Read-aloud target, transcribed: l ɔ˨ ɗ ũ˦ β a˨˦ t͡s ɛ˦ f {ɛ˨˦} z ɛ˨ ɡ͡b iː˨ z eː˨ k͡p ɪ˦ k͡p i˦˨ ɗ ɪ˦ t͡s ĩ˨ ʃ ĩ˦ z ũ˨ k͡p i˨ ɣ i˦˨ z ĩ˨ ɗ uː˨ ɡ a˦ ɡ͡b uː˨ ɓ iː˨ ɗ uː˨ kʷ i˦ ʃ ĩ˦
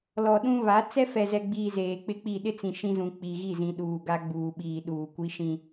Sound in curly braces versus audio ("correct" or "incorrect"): incorrect